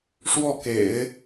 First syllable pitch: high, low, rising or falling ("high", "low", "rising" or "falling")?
falling